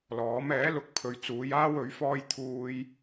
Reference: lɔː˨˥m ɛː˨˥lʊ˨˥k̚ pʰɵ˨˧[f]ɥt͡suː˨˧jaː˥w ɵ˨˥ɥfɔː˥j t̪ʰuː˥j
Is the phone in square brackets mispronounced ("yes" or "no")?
yes